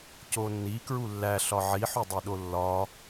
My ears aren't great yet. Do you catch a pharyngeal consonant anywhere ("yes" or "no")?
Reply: yes